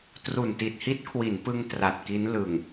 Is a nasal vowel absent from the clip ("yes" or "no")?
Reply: yes